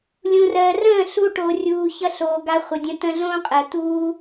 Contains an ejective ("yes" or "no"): yes